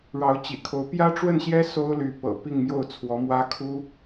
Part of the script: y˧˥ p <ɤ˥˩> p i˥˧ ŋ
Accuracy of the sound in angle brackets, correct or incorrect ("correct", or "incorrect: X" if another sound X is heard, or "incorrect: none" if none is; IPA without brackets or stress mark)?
incorrect: ɤ̰˨˩